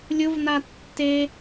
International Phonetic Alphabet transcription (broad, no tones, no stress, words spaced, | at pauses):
lʲʊvna tːe